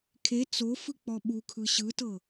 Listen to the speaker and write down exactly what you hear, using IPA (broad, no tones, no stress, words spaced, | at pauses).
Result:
kʰe t͡sofɯ k͡pɔɓukʰɯ ɕɯtɤ